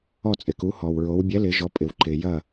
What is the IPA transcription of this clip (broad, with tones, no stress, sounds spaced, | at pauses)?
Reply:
ɔ˥˩ t͡sʼ ɪ˩ k u˩˥ h ɔ˩ w ɹ o˩˥ w bʲ ɛ˩˥ l ɪ˩˧ ʒ ɔ˩˧ pʼ ɪ˩ w ǃ ɪ˩ j ɐ˥˩